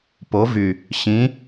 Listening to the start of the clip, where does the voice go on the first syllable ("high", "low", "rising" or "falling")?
rising